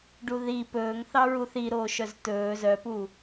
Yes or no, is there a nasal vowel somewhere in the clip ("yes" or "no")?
no